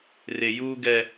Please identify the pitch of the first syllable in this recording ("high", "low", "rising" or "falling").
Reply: low